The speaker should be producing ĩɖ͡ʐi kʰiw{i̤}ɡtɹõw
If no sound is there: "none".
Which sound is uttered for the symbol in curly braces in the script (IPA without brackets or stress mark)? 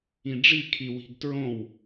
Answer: i̤